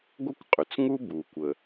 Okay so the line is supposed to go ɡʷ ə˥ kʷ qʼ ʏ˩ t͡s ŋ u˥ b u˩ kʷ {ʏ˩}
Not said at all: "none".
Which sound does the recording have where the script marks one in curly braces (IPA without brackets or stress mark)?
ə˩